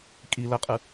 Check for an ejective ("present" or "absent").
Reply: present